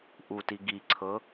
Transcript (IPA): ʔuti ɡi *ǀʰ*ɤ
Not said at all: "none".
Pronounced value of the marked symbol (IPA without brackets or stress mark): ǀʰ